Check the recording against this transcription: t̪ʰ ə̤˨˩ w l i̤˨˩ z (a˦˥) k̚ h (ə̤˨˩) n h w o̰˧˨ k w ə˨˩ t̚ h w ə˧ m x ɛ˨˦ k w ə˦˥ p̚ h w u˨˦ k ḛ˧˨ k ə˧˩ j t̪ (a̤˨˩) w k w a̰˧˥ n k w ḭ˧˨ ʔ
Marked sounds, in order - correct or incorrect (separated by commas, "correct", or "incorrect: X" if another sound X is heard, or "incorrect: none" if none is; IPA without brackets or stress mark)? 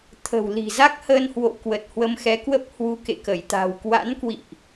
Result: correct, incorrect: ə˧, correct